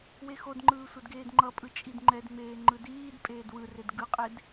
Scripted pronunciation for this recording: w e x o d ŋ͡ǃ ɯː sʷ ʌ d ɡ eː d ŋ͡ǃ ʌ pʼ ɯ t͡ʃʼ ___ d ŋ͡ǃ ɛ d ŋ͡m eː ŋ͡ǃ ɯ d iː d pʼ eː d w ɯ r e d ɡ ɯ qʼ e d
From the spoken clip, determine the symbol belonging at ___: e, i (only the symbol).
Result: i